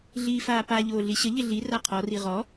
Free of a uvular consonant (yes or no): no